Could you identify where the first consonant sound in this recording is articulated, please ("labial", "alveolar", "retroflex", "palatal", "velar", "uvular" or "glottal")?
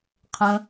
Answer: uvular